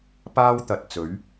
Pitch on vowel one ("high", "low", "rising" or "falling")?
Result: high